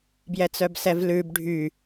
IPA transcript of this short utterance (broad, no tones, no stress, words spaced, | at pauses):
bjɛt͡sœbsɛvlʉb ɖʱy